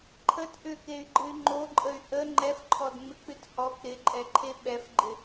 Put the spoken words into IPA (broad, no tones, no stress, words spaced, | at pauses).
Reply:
ǃʰət ʔʏkey̯ɡ͡ǃɨy̯ ŋ͡ǃoǃʼəy̯ ʔə ŋ͡ǃɛfǃʰɔdŋ͡mɪk͡pɨt hɔk ɾɪǃʼɛǃʰe ɓɛfɡ͡ǃɪ